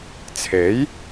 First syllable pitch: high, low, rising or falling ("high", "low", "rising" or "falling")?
rising